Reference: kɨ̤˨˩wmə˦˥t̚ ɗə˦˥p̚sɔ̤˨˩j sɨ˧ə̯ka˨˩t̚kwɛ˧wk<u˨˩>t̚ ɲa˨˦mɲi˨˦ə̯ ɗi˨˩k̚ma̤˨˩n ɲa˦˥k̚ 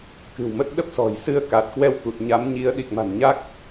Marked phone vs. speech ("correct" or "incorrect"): correct